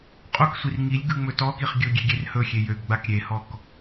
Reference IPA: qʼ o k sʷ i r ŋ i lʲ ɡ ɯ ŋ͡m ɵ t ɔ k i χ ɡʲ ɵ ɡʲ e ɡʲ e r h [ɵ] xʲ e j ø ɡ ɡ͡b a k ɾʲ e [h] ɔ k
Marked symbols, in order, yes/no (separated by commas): yes, yes